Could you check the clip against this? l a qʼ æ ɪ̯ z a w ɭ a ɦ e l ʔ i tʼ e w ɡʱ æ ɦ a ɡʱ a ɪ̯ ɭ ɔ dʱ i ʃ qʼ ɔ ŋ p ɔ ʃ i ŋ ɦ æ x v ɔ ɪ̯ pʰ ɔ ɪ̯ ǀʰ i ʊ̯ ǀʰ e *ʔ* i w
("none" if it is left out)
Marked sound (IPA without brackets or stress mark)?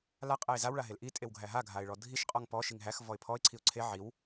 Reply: ʕ